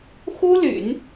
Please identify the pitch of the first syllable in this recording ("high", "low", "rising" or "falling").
high